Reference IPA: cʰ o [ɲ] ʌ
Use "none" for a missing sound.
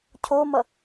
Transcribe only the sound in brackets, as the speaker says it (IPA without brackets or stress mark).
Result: m